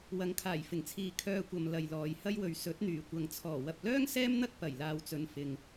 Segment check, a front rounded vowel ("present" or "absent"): present